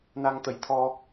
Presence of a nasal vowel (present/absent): absent